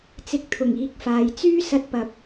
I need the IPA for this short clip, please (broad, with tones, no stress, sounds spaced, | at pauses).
t͡s ɪ˧ k̚ t̪ʰ ʊ˨˩ ŋ iː˨˥ k̚ f aː˨ j t͡s yː˥ s ɐ˧ t̚ p ɐ˨˥ p̚